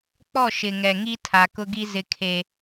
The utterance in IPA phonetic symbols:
k͡pɔ˦˨ʃɪ˨ŋɛ˨ŋi˦ tʰa˨kʊ˦ɡi˦ zɪ˦kʰe˦

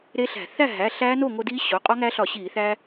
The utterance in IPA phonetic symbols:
ɾe˦˥ɬæ̤˧˩˧ θæ˥˨ɦæ˩˧˩ ɬæː˦˥no˥˨ŋo˧diː˦˥ ɕo˩˧˩ qʼɒ˦˥ŋæ˦˥ɬɒ˧˩˧ɕiː˧˩˧ θæ˧

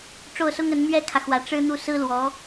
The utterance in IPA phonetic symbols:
ʈ͡ʂo˥˩ʊ̯sʊ˥ŋə˧˥n mɥɛ˥kʰä˨ xwä˧˥ ʈ͡ʂɻ̩˥ n̪u˥˩ sɹ̩˥lwɔ˧˥

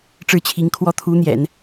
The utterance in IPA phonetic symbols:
ʈ͡ʂɻ̩˥˩t͡ɕʰi˧˥ŋkʰwɔ˥ t̪ʰu˧˥n̪jɛ̰˨˩˦n

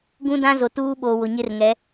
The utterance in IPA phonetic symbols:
ɡũ˦dã˦zo˨ tuː˦ɓo˨ wʊ˨ɲɪ˦rŋɛ˨˦

